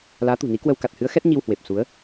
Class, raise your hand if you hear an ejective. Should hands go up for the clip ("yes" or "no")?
no